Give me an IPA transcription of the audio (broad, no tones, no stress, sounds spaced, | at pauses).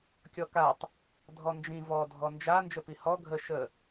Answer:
kʲ ɔ k a tˤ | dʱ ɔ n d͡ʒ ĩ v ɔ dʱ ɔ n d͡ʒ a n d͡ʒ ə p i h ɔ ɡʱ ə ʃ ə